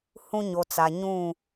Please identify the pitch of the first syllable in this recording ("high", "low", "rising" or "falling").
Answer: high